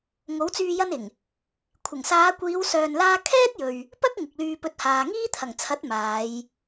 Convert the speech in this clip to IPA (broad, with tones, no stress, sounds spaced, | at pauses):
ŋ o˨˥ w t͡s yː˧ j ɐ˥ n ɪ˨˩ ŋ | kʷʰ ɪ˨˩ ŋ s aː˨˧ kʷ iː˨˧ w s œː˧ n l aː˥ kʰ ɛː˥ t̚ j ɵ˨ ɥ | p ɐ˥ k̚ ŋ ɪ˨ k̚ l yː˧ p ɵ˧ t̚ h aː˨ ŋ iː˥ t̪ʰ ɐ˨˩ ŋ t͡sʰ ɐ˨˥ t̚ m aː˨˧ j